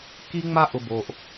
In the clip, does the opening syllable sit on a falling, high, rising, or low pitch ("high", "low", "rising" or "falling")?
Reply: high